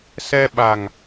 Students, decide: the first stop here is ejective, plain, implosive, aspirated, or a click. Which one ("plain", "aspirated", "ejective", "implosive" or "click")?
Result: implosive